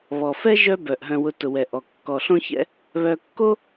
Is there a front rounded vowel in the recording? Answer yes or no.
yes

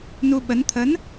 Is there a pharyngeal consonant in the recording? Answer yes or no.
no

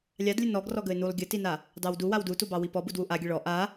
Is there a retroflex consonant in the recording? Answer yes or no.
yes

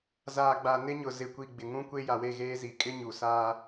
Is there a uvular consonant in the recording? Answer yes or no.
no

